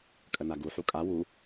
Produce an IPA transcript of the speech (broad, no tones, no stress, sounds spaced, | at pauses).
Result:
kʼ ə n a ɡ u ħ u kʼ a w u